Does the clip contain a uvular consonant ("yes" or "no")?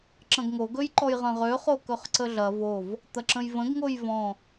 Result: yes